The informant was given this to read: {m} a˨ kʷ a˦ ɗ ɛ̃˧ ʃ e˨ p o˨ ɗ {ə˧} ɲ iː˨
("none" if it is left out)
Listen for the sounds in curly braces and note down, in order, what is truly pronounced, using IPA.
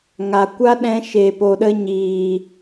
ŋ, ə˧

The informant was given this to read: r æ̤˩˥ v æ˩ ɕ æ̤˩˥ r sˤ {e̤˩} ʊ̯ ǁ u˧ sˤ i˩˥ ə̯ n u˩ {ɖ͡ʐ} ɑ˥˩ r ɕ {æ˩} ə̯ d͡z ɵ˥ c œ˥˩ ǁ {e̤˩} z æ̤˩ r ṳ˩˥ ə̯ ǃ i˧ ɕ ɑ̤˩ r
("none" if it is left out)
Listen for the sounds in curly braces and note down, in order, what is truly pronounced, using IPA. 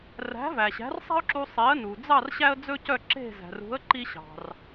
e̤˥, d͡z, æ˥, e̤˥˩

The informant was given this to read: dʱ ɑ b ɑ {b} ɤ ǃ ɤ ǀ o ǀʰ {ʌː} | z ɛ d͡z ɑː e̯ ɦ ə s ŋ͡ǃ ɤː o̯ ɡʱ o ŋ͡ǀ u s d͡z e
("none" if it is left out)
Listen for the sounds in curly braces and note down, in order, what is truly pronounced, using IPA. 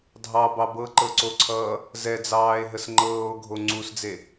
b, ʌː

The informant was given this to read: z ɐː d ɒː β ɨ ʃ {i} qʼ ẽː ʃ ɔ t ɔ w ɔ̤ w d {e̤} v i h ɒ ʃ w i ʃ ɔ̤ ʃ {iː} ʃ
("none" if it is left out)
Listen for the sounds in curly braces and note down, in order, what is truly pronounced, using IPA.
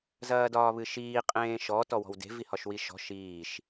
iː, e̤, iː

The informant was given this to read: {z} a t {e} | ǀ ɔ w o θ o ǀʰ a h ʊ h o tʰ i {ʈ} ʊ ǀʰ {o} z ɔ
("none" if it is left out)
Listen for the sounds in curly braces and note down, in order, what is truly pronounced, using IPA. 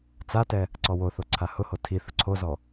t͡s, ɛ, θ, o

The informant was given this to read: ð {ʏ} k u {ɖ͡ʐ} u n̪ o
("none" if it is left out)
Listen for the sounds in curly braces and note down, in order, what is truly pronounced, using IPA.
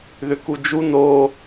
ʏ, d͡ʒ

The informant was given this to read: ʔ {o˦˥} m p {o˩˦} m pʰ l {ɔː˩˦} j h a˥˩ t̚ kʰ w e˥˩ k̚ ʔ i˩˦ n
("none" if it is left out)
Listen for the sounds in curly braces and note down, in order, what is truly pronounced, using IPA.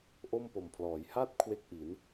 o˥˩, o˨˩, ɔː˩˦

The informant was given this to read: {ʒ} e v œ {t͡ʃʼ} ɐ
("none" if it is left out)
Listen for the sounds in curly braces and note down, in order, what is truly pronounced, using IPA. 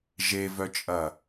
ʒ, t͡ʃʼ

